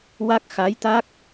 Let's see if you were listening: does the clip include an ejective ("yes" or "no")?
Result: no